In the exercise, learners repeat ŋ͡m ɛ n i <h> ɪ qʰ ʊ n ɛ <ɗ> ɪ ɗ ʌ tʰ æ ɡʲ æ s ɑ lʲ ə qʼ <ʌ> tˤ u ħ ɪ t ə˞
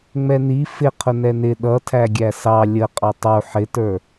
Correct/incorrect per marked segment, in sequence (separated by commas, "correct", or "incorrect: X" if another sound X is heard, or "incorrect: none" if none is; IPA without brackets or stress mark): incorrect: f, incorrect: n, incorrect: ɑ